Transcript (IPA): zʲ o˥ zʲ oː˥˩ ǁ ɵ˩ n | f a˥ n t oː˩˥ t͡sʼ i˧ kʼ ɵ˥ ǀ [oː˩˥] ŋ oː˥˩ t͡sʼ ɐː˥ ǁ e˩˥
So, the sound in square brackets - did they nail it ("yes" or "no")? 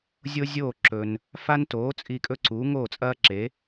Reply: no